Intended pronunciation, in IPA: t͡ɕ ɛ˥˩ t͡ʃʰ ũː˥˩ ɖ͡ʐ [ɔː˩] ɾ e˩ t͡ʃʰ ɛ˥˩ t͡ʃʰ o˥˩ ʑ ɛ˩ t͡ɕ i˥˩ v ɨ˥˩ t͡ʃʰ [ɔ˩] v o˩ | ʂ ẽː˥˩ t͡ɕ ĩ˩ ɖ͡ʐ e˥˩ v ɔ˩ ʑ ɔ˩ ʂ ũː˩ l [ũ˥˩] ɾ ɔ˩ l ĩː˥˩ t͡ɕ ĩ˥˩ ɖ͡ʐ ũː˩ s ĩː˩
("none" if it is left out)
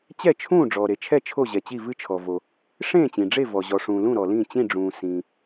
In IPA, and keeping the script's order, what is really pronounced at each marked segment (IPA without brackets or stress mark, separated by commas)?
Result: ɔː˩, ɔ˩, ũ˥˩